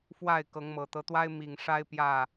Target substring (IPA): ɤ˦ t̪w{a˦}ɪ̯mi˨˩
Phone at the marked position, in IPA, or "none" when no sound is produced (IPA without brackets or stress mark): a˦